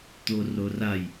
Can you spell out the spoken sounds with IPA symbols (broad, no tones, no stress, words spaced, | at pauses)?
t̪ororaj